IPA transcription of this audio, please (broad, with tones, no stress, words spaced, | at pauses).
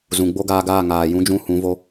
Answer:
zũ˨ɡ͡bo˦ɡaː˧ɡaː˦˨ ŋaː˨ jũ˧d͡ʒũ˧ hũ˨˦vo˦